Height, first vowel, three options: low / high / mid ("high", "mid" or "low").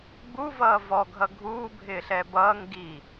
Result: high